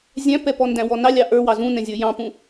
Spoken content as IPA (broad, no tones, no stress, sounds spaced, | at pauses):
zʲ æ̃ p ɛ p ɔ n d æ̃ w ɔ n ɑ lʲ ɑ ʔ ə˞ w ɑ z ũ n ɛ̃ zʲ ə˞ j ɑ̃ p ũ